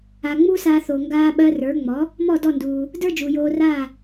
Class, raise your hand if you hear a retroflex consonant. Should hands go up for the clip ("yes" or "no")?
no